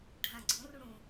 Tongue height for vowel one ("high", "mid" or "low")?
low